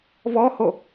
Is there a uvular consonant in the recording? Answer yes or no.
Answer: no